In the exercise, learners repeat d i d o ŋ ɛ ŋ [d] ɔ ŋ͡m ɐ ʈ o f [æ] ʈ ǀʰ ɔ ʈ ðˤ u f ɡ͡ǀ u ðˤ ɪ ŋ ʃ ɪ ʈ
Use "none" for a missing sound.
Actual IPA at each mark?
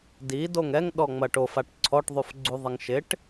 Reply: ɗ, a

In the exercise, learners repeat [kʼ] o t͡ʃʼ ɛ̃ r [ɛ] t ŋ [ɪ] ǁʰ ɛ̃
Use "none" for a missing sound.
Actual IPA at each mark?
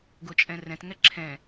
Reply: ɡ, ɛ̃, ɛ

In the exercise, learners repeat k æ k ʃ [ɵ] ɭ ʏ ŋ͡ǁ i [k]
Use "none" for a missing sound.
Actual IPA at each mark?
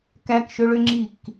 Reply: ɵ, k

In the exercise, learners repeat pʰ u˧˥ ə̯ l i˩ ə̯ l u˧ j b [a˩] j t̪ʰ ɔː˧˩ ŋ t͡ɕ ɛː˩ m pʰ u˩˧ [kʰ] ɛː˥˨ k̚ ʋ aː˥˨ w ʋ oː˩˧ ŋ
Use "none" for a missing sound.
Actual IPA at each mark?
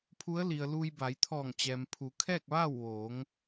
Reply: a˩˧, kʰ

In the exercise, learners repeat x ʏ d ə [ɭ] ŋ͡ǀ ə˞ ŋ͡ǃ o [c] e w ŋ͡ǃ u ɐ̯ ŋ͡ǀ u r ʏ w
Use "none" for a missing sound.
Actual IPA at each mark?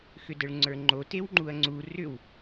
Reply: ɭ, t

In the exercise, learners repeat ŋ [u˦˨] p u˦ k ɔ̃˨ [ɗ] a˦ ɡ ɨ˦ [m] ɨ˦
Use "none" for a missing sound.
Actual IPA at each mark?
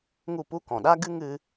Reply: u˦˨, ɗ, ŋ

